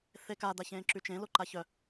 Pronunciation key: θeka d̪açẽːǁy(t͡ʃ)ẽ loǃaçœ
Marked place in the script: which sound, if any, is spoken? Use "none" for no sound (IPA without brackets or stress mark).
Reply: t͡ʃ